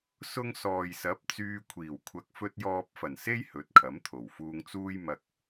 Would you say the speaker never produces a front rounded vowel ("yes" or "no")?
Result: no